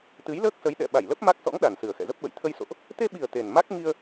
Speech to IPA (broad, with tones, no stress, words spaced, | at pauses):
t̪ɨ˨˦jləː˦˥k̚sə˨˦j ɗɛ̰˧˨ ɓa˧˩jlə˦˥p̚ ma˦˥k̚sɔ̰˧˥ŋ ɗa˨˩nsɨ˨˩ə̯xɛ̰˧˨zə˦˥p̚ ɓə̰˧˨jt̪ʰə˧jso̰˧˨ʔ | t̪e˧ɓi˨˩ə̯ t̪e˨˩n ma˦˥k̚ŋi˧ə̯